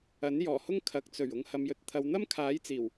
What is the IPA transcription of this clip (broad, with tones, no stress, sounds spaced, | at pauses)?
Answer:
ɐ˨˥ n j ɔː˨˩ h ʊ˥ ŋ kʰ ɐ˨˥ k̚ t͡s ɵ˨˩ ɥ ʊ˨ ŋ h ɐ˨ m j ɵ˨ t̚ t̪ʰ ɐ˨˧ w n̪ ɐ˥ m kʰ aː˨˥ j t͡s iː˨˩ w